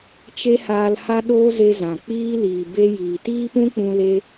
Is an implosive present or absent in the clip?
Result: present